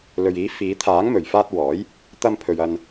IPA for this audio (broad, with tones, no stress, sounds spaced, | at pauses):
l ɵ˨ ɥ iː˨˥ f iː˨˧ t̪ʰ aː˨˥ ŋ m ɵ˨ ɥ f aː˥ t̚ w ɔː˨˥ j | t̪ ɐ˥ m pʰ ɵ˧ ɥ ɐ˧ n